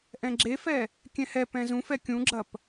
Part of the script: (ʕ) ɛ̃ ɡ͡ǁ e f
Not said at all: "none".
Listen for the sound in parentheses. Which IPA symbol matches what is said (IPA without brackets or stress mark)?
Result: ʔ